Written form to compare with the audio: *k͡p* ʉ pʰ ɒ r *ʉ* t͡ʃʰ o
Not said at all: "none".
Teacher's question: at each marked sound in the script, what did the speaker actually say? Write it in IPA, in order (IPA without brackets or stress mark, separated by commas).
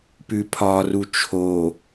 p, u